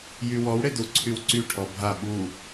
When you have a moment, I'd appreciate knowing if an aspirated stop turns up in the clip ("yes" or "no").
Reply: yes